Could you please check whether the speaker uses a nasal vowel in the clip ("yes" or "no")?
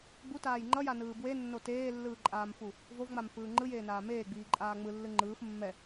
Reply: no